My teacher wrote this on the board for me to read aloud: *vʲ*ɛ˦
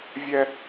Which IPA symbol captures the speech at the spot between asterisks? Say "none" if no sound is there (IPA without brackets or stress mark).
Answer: vʲ